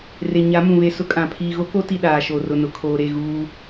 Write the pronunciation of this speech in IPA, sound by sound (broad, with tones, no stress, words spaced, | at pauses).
re˨ ɲa˨˦mũ˨βe˨ sʊ˦kʼã˨ pʰiː˨ɣo˦ko˦ti˨ ɗaː˨ʃo˨ rʊ˨nʊ˨kʰoː˨ ɾe˦˨ɣuː˦